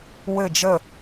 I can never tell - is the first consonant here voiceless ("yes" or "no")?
no